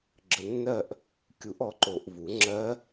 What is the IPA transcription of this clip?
ɡ͡ǁ ə˨ nː ɜ˦˨ ʔ | kʲ u˨˩˦ ʔ ɔ˩˥ ǃ o˨ ʔ v u˨˩˦ ŋ͡ǁ ɜ˦˥

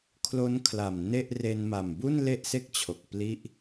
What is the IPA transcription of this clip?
kʰ l o˦˥ n kʰ l a˨˩ m n e˥˩ ʔ r e˧ n m a˨˩ m b u˥˩ n l e˥˩ ʔ s e˥˩ k̚ t͡ɕʰ o˨˩ k̚ p l i˥˩ ʔ

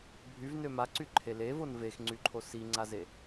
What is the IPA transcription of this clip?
bʱ y v n ø m a ǀ y ǃʰ e l e v o n v e x ŋ͡ǀ y ǃʰ o s i ŋ͡ǀ a z e

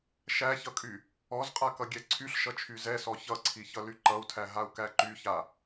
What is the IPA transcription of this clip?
ʃ æ ç ʌ kʼ y | ɔ z qʼ a k ʌ ɡʲ ɛ ǀʰ y ɬ ʃ ʌ t͡ʃʰ y z ɛ s ɔ ç ʌ ǀʰ i ç ʌ l y ǃ ʌ u̯ tʰ æ ɦ a u̯ k æ ǃ y ç a

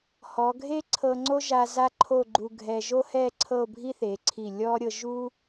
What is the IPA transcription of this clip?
h ɔ˩˧ ɡʱ e˥ ǀʰ ɤ˧ ŋ͡ǀ o˥ ʒ a˧ z a˥ ǃʰ o˥˧ ɡ͡ǃ u˧ ɡʱ ɛ˧ ʒ o˥ h ɛ˥˧ ǀʰ ɤ˥˧ o̯ bʱ i˥ θ e˩˧ ǀʰ i˧˩ lʲ ɔ˥ ɾʲ ɤ˧ ʒ u˥

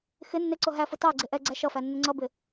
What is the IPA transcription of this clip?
x ɪ nː ɪ ǀ ʊ ɦ æ f ʊ t ɑ ɡ͡ǀ ɪ ʔ ɛ ɡ͡ǀ æ ʃ ʌ f æ nː ə ŋ͡ǀ ʌ b ɪ

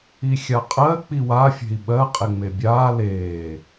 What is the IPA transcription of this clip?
i xʲ a qʼ ɜ k͡p i w a fʲ e̤ i̯ ɓ ɜ qʼ e ŋ͡m e bʲ aː l eː

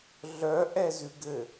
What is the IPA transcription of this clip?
ɮ œ ʔ ɛ z ʉ ɡ ɘ

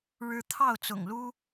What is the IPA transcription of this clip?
ɻ ɻ̩˦ t̪ʰ ɑ˥˨ ʊ̯ t͡s ʊ̰˨˩ ŋ l u˦

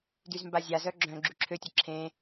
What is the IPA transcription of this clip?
d y z m b a zʲ a z œ ɡ͡ǁ œ̃ ɡ͡ǁ y ǁʰ ø tʲ ə ǁʰ ẽ

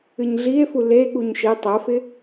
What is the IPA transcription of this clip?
ɨ ɲ ɮ i e̯ f u l e ɠ u ɲ ʃ e tˤ ɜ f ɪ

